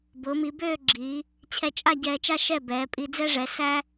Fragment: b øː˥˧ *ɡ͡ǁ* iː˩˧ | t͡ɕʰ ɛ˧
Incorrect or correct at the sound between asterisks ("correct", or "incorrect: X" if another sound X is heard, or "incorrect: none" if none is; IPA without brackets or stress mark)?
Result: correct